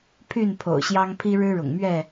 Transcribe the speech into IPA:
pʰ y˥˨ n pʰ o̰˨˩ ʊ̯ ɕ j ɑ˦ ŋ pʰ i˦ ɻ ɻ̩˦ ɻ ʊ̰˨˩ ŋ m ɥ ɛ˥˨

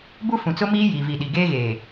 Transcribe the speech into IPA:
b u˦ f ũ˨ t͡s ʊ˦ m iː˦ j iː˨ v i˨ ɗ i˨ ɡ eː˦ ɣ eː˨

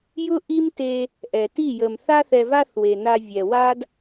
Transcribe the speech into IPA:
j ʊ˦ ʔ i˦ m t e˧ | ʔ ɛ˨ t i˦˨ j ə˨ m θ a˦ θ ɛ˧ v a˦ θ w e˨ n a˧ vʲ ɛ˨ w a˦ d

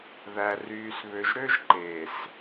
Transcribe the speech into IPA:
ð æ˨ r yː˨ s β ø˨ ʒ ɾ ø˦ ʒ ǃ eː˨ s

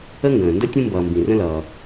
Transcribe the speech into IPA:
ə˥ ŋ ɡ ə̃ː˩ n d ə˥ tʲ ũ˦ m b ʌː˩ m b ĩ˩ r ə̃˦ l ʌː˩

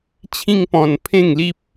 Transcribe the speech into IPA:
t͡ɕʰ ĩ˦ ŋ p ɔ̃˧ n pʰ ẽ˥˧ ŋ l i˦ p̚

